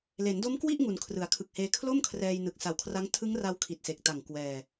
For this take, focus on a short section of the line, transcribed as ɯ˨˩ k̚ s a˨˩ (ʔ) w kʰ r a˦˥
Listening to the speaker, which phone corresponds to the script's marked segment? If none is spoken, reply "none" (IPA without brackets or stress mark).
none